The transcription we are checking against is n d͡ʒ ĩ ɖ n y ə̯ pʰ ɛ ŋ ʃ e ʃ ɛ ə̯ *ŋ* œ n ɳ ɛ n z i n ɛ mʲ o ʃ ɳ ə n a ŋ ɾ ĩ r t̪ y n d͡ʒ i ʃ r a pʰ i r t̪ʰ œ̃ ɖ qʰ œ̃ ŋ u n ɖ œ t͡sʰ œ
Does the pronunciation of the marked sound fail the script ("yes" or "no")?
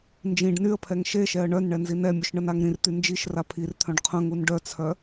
yes